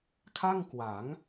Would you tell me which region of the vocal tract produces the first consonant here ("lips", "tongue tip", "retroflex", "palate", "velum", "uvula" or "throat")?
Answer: velum